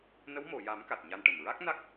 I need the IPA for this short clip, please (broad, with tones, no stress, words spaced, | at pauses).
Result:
nə˧˥wmo˨˩˨ja˨˩˦m ka˨˩t̚ɲa˧nʈə˨˩m ɹa˦˥k̚ na˦˥k̚